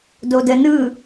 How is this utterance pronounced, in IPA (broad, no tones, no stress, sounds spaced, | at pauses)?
d o d ə n ɯ